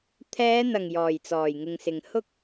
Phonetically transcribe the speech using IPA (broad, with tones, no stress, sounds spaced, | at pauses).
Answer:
t̪ʰ ɛː˨˧ n̪ ɐ˨˩ ŋ j ɔː˨˩ j t͡s ɔː˨˩ j ŋ ɪ˨ ŋ s ɪ˨ ŋ h ʊ˥ k̚